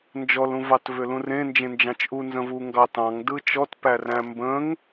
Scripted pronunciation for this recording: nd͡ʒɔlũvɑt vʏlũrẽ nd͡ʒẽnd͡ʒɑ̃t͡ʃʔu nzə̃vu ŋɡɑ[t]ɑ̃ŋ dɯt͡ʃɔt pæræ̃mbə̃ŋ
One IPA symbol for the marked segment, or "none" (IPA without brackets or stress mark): t